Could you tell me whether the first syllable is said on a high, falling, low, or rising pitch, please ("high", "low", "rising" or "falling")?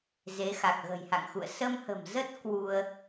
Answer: rising